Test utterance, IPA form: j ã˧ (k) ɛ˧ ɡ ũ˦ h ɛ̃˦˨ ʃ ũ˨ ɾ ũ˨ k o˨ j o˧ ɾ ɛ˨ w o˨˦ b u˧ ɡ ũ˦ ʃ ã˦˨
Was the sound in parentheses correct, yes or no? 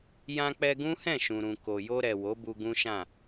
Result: no